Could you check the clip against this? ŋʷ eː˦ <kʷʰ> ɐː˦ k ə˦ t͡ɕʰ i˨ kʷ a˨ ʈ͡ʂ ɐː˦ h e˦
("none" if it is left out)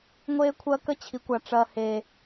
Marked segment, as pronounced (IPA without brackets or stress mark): kʷʰ